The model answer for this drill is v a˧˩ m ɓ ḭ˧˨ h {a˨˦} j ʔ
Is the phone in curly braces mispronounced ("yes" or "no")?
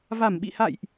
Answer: yes